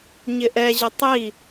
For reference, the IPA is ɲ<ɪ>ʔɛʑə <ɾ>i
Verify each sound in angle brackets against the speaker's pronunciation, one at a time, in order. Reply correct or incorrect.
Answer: correct, incorrect: tˤ

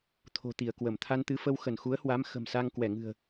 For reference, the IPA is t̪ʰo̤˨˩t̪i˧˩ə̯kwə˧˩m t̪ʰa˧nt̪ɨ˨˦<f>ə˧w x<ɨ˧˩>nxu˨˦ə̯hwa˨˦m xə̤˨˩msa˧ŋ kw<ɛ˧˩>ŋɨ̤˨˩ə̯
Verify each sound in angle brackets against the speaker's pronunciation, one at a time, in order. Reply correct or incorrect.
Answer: correct, incorrect: ə˧˩, correct

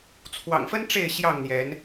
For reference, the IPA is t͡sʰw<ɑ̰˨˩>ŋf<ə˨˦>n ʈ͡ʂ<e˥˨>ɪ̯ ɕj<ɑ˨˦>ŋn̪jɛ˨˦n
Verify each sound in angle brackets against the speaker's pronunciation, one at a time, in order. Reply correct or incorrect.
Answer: correct, incorrect: ə˦, correct, incorrect: ɑ˥˨

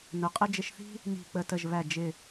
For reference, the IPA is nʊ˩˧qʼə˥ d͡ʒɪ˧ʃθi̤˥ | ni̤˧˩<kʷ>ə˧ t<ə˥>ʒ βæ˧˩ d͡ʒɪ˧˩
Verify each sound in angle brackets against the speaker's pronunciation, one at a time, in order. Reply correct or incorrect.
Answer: incorrect: k͡p, incorrect: ə˧˩

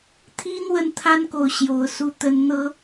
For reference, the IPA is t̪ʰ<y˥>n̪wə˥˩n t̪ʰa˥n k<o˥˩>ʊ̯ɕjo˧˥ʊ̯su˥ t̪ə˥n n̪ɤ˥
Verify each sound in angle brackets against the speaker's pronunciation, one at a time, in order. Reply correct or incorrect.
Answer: incorrect: i˥, correct

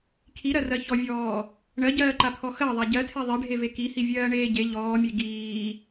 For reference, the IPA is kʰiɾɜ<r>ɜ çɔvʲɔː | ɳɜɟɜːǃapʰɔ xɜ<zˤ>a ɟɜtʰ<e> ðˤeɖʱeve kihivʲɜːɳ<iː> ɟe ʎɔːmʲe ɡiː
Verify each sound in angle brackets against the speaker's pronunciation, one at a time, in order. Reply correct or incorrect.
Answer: correct, incorrect: ðˤ, correct, incorrect: eː

